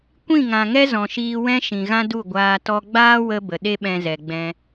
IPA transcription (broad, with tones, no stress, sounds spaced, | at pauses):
kʷ ĩ˦˨ ŋ ã˨ ŋ ɛ˦ z ɔ̃˨ ʃ iː˧ w ɛ̃˦ ʃ ĩ˨ ɣ ã˦ d u˦˨ ɡʷ aː˧ t ɔ˧ ɡ͡b aː˦ w ə˧ b ə˨ ɗ e˦ ɓ ɛ̃˧ z ɛ˨ ɡ͡b ɛ̃˧